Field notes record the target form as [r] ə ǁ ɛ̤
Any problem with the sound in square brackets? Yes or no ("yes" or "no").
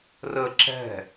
no